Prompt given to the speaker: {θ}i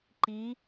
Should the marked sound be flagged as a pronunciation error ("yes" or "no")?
yes